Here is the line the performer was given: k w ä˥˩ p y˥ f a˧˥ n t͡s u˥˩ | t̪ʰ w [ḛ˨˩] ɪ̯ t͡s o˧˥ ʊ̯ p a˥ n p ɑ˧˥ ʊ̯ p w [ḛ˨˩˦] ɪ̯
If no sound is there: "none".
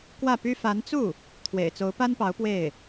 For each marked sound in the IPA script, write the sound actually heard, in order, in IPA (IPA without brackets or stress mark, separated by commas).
ḛ˨˩, e˥˩